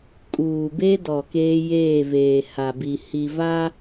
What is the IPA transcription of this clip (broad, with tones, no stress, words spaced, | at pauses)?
kʼuː˨be˦dɔ˨ keː˦jeː˦˨veː˨ ha˨bi˨ hi˨va˦